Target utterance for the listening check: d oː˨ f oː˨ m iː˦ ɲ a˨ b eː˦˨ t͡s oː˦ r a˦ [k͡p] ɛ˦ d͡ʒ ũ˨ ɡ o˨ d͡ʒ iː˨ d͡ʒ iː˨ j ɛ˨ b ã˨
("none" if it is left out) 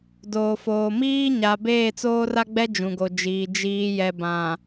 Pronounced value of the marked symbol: ɡ͡b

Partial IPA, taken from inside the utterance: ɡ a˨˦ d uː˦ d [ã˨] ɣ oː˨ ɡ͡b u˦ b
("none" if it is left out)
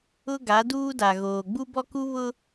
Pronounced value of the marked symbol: a˨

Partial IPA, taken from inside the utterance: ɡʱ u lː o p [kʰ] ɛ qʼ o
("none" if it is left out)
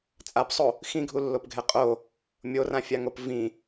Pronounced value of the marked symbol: ɡʱ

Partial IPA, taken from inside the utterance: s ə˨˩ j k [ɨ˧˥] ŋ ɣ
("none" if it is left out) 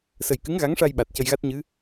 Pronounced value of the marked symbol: ɨ˧˥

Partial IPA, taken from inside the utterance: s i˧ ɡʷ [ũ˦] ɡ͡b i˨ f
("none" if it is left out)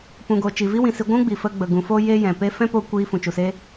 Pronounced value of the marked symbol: ũ˦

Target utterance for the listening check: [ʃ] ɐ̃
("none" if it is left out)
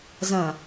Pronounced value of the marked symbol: z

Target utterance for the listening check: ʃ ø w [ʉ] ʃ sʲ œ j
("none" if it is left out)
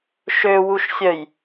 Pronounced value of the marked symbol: u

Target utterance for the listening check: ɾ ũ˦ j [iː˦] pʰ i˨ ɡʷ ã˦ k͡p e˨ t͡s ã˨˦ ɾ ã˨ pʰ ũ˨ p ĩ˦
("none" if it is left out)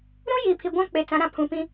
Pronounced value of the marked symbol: iː˨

